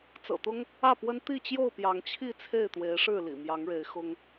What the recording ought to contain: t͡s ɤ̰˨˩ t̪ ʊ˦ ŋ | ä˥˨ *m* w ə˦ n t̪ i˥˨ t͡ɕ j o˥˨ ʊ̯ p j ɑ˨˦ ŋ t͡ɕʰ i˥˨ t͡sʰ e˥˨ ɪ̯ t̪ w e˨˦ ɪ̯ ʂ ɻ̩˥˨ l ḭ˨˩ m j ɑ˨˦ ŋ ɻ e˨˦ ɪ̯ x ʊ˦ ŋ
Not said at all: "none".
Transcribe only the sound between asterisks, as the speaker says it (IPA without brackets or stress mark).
p